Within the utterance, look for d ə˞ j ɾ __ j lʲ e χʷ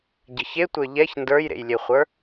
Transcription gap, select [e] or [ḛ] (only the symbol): ḛ